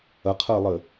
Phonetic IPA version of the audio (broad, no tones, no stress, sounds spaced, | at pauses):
ɐ qʰ əː lˠ ɘ